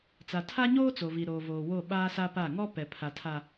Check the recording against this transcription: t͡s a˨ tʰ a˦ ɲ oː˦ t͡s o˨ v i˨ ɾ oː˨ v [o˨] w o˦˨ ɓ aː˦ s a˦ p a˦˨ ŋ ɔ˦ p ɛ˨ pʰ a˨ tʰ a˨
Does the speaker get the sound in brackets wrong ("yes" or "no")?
yes